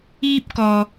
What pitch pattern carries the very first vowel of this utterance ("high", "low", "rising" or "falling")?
high